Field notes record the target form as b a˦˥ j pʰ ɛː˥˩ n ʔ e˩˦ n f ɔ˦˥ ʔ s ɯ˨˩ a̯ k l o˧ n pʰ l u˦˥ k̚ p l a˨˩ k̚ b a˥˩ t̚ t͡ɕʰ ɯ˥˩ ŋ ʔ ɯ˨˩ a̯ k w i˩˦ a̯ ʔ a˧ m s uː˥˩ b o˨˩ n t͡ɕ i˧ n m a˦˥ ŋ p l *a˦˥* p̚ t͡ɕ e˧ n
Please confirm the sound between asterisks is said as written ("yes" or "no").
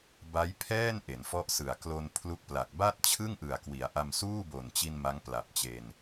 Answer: no